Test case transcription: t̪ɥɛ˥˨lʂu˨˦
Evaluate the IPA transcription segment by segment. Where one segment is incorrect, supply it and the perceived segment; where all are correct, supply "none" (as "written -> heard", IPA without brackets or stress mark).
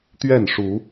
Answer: l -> n